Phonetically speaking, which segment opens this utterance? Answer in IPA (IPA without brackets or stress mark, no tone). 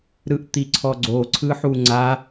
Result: ɾ